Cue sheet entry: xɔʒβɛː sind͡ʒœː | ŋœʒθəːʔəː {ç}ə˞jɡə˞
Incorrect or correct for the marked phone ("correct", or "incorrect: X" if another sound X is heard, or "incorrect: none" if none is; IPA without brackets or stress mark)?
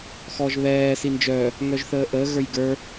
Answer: incorrect: ɣ